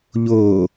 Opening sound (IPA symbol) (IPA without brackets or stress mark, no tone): ʎ